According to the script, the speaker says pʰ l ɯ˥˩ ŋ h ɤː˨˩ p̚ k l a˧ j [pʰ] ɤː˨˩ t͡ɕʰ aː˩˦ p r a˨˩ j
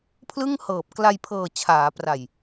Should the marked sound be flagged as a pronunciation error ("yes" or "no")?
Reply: no